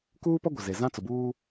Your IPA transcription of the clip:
k uː˦ p ɔ˦ ɡʷ ɪ˨ z e˨ z ã˦ t͡s ʊ˨ b uː˦

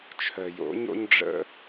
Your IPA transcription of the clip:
t͡ʃʰ œ˨ j o̰˨˦ ɲ o̰˦ ɲ ɖ͡ʐ ə̰˦

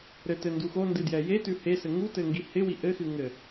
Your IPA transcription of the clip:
ɾ ɘ t ɘ n d u x o n d ɨ d j ɛ j e t ʉ h e s ɘ ŋ u t ɘ ŋ ɡ i h ɪ w i ʔ ɘ x ɨ ŋ ɘ

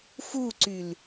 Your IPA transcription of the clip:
f u ǀ y l

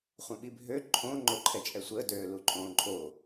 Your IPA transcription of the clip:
χʷ œ̃ ɓ i bʱ ø ǃʰ õ ŋ͡ǃ o ǃʰ ɛ t͡ʃʼ ɛ sʷ əː d øː l u ǃʼ õː ǃʼ o

